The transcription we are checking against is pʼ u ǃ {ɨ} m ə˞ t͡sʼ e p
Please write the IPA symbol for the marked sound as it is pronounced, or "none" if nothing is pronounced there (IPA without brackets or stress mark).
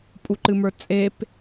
ɨ